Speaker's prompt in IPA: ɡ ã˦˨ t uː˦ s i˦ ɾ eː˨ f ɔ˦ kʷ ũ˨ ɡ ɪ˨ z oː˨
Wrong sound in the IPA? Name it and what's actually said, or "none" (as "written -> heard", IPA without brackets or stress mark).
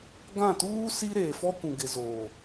none